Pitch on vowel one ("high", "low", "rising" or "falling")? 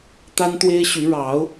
high